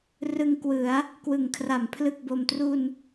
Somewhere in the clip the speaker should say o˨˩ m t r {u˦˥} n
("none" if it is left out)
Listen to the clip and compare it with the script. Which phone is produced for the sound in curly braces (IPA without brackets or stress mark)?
u˧